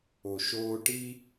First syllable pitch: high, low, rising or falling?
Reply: low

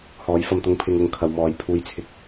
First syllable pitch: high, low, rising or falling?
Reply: rising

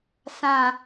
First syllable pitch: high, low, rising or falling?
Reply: low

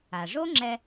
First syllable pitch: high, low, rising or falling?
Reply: low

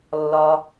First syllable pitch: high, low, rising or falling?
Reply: low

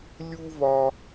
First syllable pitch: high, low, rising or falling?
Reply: high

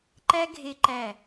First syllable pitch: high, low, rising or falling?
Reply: high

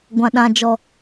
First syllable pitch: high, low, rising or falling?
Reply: low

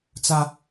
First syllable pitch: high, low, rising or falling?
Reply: high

